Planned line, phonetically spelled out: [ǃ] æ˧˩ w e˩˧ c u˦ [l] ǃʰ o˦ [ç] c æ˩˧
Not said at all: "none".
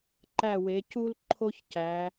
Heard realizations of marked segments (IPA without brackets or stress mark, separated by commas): ǃ, l, ç